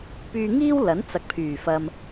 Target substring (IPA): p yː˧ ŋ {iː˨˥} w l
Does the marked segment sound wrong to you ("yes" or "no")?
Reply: yes